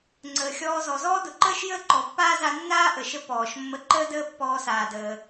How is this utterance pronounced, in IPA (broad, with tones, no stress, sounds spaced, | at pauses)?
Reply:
ŋ͡ǀ əː˩ xʲ ɔː˧ z ɔ˩ z ɔː˥ d ʊ˩ ǃ əː˥ ʃ j əː˥ ǃ ɔ˩ pː aː˥ z a˧ nː aː˥ ʔ ə˩ ʃ ə˧ p ɔː˩ ʃ mː ə˧ ǃ əː˥ d əː˥ pː ɔː˧ s aː˩ d əː˩